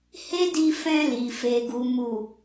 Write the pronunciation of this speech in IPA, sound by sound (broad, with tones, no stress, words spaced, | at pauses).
he˦di˧fɛ̃˧ li˨ fe˨ɡu˨ mu˨